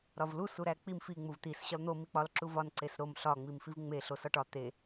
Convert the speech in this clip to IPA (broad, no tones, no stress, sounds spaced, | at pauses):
ɾ ɒ v l u s u ɾ æ k͡p i m f i ŋ͡m u v t̪ i s ɕ ɒ l n̪ o m i k͡p ɒ l ǁ u v ɒ n ǀ e s ɾ o m ɬ ɒ ŋ͡m i m f i v ŋ͡m e ɬ o s ɒ ʈ ɒ t̪ e